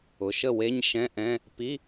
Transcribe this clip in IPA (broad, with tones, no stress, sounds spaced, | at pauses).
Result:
ʊ˩˧˩ ʃ ə˥˩ w e˧˥˧ ɲ ʃ ɛ̃˧˥˧ ʔ ɛ̃˧˥˧ | p i˧˥˧